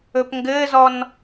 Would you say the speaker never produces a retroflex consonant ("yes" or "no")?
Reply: yes